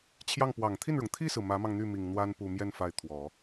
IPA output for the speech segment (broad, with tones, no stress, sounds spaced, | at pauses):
t͡ɕʰ j ɑ˥˩ ŋ p w ɑ˨˩ ŋ t̪ʰ i˥˩ n ɻ ʊ˩ ŋ t̪ʰ i˥˩ s ɹ̩˩ m ä˧˥ m ɑ˧ ŋ n̪ y˥˩ m i˨˩ ŋ n̪ w a˥ n p u˨˩ m j ɛ˥˧ n f a˥˩ ɪ̯ t̪ʰ w ɔ˨˩˦